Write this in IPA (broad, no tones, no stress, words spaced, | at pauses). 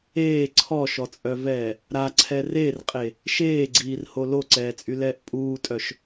eː ǀʰɔʃɔt͡sʼœvɛː | ɾaǀʰɛ rerqʼe | ʃeːɡ͡ǀiːrho loǀɛːt͡sʼylɛːʔ pʼuːtʼœʃ